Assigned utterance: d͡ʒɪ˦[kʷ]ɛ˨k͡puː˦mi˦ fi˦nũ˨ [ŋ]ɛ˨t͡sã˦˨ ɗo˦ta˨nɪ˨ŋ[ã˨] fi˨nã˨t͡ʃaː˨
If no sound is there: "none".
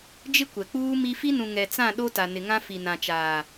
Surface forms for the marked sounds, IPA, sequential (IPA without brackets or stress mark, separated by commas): kʷ, ŋ, ã˦